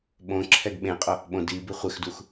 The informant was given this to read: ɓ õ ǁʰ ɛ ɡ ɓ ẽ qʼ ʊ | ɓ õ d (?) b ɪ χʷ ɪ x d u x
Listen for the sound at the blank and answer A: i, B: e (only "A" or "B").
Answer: A